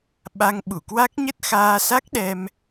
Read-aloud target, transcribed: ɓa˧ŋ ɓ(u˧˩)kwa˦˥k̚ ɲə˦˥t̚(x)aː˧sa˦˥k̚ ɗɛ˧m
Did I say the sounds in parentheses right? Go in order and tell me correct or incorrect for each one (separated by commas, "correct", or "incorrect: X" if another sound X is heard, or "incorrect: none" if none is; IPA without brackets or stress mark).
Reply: correct, correct